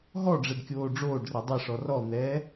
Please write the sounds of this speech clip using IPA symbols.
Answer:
ɦ ɔ ɖ͡ʐ ɛ ɖ kʲ oː ɖ͡ʐ oː ɖ r ɛ dˤ ɛ ʂ ɔ r ɔ n̪ ɛː

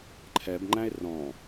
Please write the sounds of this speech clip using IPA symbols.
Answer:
ǃʰ ɛ b ŋ͡ǃ æ̃ e̯ r ɔ̃

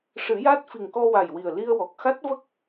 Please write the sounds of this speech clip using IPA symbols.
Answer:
ʂ ɨ˨˩˦ j a˦˥ t̚ f i˨˩ ŋ k ɔ˧ w a˨˩ j w i˨˩ ə̯ l i˧ ə̯ w ɔ˨˩ k̚ x a˦˥ t̚ v ə˦˥ k̚

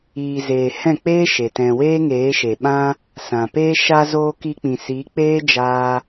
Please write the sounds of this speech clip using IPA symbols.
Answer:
iː˨ z eː˨ h ɛ̃˦˨ k͡p eː˦ ʃ e˨ t ɛ̃˧ w eː˦ ŋ eː˨˦ ʃ e˨ ɓ ã˦ | s ã˨ p eː˦ ʃ aː˧ z oː˧ k i˧ k͡p ĩ˨ s i˨˦ k͡p eː˦ d͡ʒ aː˧

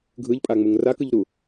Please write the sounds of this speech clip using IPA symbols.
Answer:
ɡʱ ɯ ʎ pʼ a ŋ͡m u ŋ r a k ɯ ʎ ɾ u

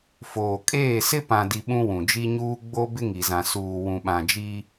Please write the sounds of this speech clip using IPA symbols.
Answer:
f oː˨ kʼ eː˦˨ s ɪ˦ p ã˨ d i˨ ɓ ũ˦ w ũ˨ d͡ʒ i˦ ɲ uː˦ ɡ͡b o˦ b ɪ˦ ŋ i˨ z ã˨ s uː˨ w ũ˨ ɓ ã˨ d͡ʒ i˦

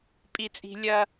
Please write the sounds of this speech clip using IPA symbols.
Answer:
pʼ i˨ t͡sʼ i̤˨ lʲ ɐ˦

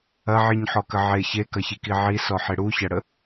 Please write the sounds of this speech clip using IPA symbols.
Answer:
ɐ ʕ i ɲ ħ ɔ k ə ʕ e ç e k ɐ ç i k i ʕ i s ɔ ħ e ɽ u ç ɐ ɽ ə

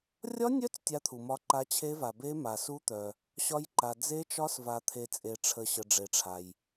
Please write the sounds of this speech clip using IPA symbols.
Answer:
rʲ ɒ˦˥ nʲ œ˦˥ t͡s tʲ a˦˥ t̪ʰ u˨ m ɒ˦˥ ǃ a˦˥ t͡ɕʰ e˦˥ v a˨ b e˦˥ m a˨ s u˦˥ t̪ œ˨ | ɕ ɒ˦˥ j ǃ a˨ d͡z e˦˥ t͡ʃ ɒ˦˥ s v a˨ t̪ʰ e˨ t͡sʼ e˨ ʈ͡ʂʰ ə˨ ɕ ə˨ ɖ͡ʐ e˨ ʈ͡ʂʰ a˨ j

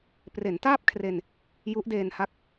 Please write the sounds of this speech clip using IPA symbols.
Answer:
p r e˩˦ n t aː˥˩ p̚ kʰ r e˧ n | j u˦˥ ʔ d eː˧ n h a˥˩ k̚

